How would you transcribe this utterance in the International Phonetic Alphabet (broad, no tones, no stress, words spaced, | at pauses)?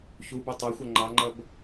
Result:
çubo tˤɑxʷʌ ŋ͡ǃɑŋ͡ǃʌb